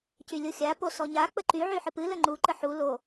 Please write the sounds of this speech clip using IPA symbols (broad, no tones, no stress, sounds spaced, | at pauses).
c y lʲ o xʲ a p o s ɔ ɲ a k͡p ə ǃ y ʕ y ħ ɨ p ɨ l ə ŋ͡ǃ u ǃ ə ħ u l o